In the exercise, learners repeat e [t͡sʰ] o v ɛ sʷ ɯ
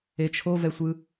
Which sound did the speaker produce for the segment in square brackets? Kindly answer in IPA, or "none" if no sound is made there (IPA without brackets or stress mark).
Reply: t͡ʃʰ